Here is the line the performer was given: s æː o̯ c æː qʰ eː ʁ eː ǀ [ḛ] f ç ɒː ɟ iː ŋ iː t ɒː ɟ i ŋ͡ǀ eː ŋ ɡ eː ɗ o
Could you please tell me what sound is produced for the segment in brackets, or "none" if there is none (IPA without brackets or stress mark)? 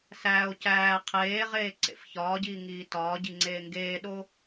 ḛ